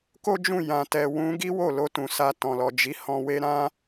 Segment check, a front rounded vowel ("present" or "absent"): absent